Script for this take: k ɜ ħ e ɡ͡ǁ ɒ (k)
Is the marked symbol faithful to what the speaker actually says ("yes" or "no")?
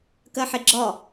no